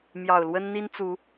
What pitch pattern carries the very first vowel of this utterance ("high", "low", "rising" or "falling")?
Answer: low